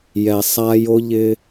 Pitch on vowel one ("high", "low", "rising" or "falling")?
low